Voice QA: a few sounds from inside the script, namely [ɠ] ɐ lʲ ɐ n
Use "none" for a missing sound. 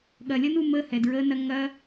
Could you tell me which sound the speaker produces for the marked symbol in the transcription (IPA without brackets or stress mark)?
ɠ